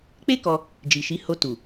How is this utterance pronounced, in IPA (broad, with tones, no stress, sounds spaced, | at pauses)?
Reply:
k͡p e˦ k ɔ˧ | d͡ʒ i˨ ʃ i˨˦ h o˧ t u˨